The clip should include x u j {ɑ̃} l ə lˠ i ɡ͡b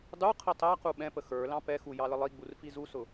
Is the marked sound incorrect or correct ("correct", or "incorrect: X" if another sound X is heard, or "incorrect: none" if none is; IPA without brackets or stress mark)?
incorrect: ɑ